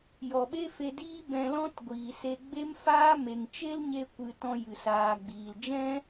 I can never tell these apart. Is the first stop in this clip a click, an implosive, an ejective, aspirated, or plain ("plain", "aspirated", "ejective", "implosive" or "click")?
implosive